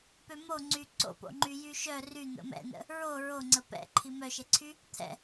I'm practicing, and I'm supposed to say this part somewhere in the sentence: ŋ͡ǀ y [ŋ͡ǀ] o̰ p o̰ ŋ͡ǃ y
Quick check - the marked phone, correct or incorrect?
incorrect